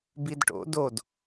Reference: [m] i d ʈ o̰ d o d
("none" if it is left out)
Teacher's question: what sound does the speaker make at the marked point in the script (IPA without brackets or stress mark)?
b